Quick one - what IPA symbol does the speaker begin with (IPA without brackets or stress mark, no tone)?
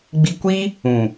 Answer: ɡ͡b